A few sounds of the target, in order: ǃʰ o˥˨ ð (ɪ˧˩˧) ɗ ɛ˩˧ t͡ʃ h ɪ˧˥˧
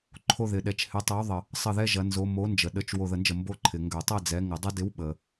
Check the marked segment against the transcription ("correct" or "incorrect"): correct